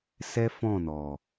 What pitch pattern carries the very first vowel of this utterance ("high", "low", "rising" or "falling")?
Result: high